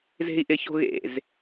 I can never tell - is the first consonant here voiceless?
no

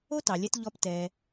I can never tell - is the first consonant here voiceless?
yes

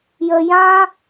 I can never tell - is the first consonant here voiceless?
no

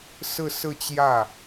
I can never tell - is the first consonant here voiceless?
yes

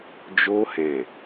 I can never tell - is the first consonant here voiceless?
no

